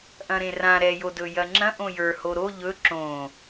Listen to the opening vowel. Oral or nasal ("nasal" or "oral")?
nasal